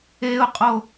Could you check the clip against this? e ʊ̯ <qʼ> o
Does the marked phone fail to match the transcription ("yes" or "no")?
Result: no